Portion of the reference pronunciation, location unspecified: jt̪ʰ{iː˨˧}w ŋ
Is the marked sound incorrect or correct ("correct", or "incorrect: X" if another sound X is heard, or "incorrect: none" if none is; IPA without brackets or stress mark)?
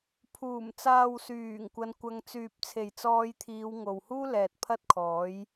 correct